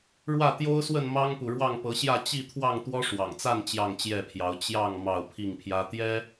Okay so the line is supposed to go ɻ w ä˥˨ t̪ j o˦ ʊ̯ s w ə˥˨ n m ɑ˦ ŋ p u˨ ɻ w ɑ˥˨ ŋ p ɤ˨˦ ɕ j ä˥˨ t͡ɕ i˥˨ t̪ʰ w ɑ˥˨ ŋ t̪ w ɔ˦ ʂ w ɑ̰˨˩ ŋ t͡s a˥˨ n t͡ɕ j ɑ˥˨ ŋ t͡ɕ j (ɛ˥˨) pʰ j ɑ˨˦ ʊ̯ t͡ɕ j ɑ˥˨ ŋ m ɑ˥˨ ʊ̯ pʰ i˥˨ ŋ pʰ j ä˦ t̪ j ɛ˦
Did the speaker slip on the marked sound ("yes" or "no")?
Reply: no